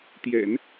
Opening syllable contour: low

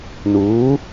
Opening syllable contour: rising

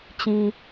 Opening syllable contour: low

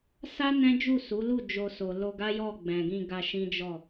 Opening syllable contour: high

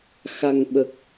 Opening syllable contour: low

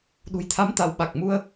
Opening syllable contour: low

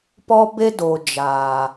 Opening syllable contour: high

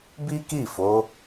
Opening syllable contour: high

